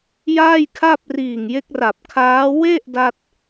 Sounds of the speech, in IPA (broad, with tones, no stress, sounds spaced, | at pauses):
j aː˥˩ j kʰ a˥˩ p̚ r iː˨˩ ŋ j e˦˥ k̚ r a˨˩ p̚ kʰ aː˦˥ w e˥˩ ʔ d a˥˩ t̚